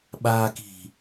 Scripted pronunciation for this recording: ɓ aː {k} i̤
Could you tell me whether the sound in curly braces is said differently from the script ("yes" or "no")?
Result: no